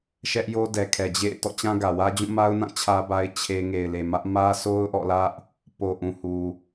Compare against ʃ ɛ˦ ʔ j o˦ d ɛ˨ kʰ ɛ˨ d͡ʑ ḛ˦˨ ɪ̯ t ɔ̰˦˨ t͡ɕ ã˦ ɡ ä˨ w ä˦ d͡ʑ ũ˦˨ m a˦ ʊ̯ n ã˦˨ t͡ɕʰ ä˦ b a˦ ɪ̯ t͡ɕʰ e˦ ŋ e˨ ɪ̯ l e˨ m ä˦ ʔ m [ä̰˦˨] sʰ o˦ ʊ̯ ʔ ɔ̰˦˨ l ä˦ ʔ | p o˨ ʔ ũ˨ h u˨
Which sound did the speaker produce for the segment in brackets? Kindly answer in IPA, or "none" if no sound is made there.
ä˦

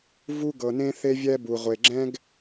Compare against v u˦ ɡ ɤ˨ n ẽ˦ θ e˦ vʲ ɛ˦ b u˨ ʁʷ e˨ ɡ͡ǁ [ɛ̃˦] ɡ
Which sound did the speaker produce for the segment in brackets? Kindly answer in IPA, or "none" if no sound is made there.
ɛ̃˦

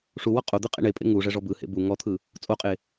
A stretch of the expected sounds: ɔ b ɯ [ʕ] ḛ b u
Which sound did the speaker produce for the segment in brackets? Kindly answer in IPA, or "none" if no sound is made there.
h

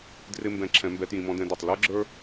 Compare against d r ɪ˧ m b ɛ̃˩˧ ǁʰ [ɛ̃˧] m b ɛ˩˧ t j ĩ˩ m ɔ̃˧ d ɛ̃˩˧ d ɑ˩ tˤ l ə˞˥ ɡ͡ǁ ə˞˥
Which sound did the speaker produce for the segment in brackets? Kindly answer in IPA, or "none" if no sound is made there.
ɛ̃˩˧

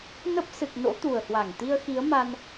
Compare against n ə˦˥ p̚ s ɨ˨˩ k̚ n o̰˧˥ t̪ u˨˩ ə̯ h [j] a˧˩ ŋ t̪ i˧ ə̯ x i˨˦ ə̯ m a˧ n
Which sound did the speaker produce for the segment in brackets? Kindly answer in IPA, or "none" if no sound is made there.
w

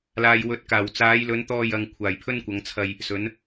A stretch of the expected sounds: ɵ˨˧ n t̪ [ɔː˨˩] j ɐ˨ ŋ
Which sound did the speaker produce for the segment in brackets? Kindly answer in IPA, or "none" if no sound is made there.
ɔː˧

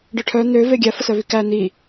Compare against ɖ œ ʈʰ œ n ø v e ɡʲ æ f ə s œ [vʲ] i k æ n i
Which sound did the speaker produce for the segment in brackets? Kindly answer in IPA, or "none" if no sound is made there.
v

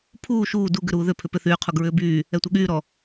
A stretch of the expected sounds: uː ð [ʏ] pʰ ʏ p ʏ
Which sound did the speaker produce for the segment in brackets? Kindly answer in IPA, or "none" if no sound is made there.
ʏ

